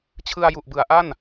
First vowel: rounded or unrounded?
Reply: unrounded